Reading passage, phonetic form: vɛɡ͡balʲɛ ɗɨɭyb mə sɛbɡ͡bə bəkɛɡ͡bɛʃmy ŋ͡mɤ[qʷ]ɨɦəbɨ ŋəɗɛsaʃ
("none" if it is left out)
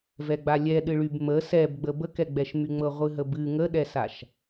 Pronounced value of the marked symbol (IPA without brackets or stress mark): ʁʷ